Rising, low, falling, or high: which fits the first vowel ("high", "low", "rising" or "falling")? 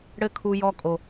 high